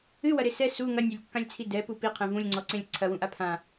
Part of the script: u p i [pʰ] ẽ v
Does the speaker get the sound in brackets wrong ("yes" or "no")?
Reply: yes